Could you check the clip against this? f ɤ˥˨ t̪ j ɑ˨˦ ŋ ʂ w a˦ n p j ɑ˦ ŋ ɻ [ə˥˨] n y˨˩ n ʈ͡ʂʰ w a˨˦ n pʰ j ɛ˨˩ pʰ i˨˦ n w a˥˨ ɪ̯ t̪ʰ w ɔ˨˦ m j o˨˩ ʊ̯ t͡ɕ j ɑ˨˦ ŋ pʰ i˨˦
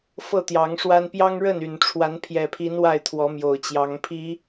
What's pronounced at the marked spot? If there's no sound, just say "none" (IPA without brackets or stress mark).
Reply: ə˥˨